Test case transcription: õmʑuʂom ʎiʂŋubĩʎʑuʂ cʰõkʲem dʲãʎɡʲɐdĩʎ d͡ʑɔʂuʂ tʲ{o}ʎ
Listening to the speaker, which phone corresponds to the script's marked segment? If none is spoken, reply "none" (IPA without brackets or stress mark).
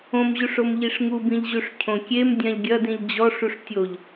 o